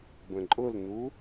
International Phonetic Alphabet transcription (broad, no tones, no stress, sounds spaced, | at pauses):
b ə̃ ǃʼ ʊ l n u